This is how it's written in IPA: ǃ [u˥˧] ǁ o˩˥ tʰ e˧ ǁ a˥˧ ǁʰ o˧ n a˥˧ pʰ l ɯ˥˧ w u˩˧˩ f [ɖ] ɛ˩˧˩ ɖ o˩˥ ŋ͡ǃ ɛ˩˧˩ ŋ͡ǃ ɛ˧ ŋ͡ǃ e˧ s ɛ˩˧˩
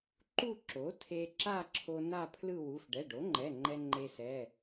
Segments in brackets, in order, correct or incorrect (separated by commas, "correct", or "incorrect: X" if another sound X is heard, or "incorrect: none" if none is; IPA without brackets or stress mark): correct, correct